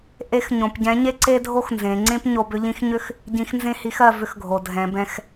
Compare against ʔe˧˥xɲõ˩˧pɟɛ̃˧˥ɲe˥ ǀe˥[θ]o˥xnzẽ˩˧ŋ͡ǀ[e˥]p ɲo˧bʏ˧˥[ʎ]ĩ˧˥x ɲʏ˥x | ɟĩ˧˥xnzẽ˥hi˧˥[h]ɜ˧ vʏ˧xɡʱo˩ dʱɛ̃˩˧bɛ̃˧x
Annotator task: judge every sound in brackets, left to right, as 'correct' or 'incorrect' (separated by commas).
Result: incorrect, incorrect, correct, incorrect